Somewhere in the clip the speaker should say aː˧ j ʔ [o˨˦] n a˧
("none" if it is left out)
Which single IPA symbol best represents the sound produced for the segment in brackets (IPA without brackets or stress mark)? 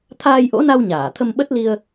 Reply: o̰˧˥